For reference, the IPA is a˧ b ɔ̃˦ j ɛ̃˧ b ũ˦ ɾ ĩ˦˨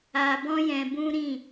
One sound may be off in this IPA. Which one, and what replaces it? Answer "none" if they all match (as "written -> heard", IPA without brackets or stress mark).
none